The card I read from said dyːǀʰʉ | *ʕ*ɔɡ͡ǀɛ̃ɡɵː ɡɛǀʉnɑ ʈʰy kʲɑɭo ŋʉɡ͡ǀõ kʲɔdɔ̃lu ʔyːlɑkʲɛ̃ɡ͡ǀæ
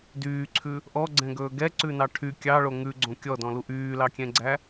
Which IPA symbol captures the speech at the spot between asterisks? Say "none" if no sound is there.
ʔ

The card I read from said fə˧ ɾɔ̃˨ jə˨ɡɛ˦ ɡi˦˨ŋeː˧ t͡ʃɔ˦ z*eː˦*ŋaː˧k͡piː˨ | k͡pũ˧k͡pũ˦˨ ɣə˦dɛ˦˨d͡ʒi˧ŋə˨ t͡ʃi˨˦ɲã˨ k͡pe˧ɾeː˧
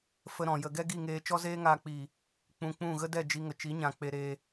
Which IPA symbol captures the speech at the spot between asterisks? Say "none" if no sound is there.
eː˦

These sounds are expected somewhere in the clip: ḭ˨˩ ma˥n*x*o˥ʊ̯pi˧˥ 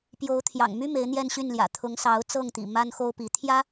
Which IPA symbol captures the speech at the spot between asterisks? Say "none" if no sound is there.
x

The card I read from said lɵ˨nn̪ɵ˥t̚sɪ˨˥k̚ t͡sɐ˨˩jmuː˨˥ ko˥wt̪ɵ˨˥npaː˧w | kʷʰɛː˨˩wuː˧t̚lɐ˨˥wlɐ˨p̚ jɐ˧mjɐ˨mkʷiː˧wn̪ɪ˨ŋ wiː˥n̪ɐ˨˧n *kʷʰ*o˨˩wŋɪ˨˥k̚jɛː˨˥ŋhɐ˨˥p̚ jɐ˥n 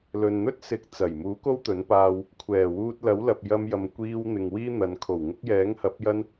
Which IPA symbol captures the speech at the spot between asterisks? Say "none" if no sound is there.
kʰ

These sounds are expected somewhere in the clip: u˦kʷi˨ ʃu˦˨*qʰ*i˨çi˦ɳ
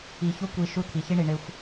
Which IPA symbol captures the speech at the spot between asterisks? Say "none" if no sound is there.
t̪ʰ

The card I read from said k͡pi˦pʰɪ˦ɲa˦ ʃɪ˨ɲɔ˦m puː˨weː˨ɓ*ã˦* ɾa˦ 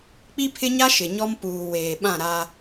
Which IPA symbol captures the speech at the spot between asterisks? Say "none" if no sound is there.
ã˦˨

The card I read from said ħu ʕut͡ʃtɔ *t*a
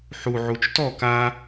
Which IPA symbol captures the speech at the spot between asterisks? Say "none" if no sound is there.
k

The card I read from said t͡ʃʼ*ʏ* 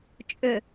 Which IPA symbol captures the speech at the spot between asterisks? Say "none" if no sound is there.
ʏ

